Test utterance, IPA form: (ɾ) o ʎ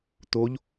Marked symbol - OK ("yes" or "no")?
no